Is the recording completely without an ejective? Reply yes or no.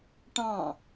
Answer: yes